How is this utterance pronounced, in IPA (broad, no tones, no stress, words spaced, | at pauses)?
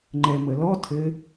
ŋ͡ǃɛməlɔ tʰɘ